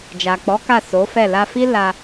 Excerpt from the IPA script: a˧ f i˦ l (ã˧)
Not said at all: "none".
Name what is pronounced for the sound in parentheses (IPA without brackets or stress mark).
a˧